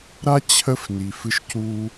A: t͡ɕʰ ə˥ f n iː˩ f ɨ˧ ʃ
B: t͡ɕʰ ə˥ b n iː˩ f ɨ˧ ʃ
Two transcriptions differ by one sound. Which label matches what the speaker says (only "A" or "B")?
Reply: A